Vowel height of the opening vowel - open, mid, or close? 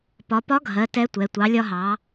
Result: open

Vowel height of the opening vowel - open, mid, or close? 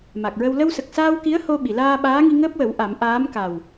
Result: open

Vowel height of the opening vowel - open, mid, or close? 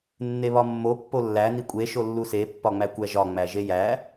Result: mid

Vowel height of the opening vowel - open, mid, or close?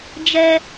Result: mid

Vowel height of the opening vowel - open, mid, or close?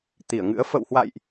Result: close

